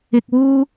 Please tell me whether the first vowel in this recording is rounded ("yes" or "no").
no